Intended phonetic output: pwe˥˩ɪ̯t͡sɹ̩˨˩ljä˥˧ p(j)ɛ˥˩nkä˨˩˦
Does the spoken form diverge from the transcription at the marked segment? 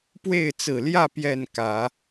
no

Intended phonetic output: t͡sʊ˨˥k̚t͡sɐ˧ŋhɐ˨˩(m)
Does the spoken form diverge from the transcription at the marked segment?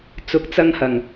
yes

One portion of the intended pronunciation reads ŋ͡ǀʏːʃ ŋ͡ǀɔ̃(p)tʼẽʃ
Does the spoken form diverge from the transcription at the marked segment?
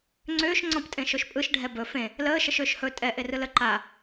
no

